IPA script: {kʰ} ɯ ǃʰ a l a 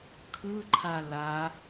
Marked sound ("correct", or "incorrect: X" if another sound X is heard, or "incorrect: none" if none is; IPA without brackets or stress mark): correct